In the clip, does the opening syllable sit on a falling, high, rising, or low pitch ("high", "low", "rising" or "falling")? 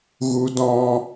high